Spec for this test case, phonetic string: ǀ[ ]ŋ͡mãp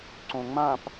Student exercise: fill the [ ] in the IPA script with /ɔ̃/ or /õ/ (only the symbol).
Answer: õ